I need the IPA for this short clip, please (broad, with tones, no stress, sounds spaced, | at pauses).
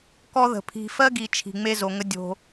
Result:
k ɔ˦ ð ə̤˨ pʰ i̤˨ f ɜ˦ ɡ i˨ t͡ʃʰ i̤˨ ŋ͡m e˦ z o˨ ŋ ə˦ dʲ o̤˦